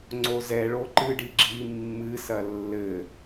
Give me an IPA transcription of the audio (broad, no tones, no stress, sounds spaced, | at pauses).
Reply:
ŋ͡ǀ o z ɛ ɭ o ǃ ɨ ɖ i ɡ͡ǁ i mː ɨ s ɐ lː ɘ